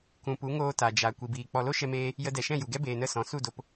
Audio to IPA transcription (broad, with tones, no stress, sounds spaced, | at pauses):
k ũ˨ p u˨˦ ŋ oː˧ t a˨ d͡ʒ a˨ kʷ i˨ b iː˨ k͡p ɔ˧ l o˦ ʃ ɛ˧ m eː˧ | j ə˧ d ɛ˨ ʃ ɛ̃˦˨ j u˨ ɡ ɛ˦ b eː˨ n ə˦˨ s ɔ̃˨˦ s u˦˨ d o˧ p